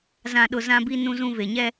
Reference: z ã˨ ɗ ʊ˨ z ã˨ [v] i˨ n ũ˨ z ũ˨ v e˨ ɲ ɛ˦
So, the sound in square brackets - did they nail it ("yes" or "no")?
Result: no